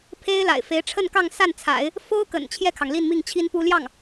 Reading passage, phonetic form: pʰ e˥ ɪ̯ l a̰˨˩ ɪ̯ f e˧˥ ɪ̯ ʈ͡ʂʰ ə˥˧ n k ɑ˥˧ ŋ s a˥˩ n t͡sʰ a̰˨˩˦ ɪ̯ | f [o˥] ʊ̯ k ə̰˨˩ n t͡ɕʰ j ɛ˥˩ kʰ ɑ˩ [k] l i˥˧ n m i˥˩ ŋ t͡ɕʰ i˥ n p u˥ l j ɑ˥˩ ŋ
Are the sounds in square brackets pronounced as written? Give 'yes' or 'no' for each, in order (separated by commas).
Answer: yes, no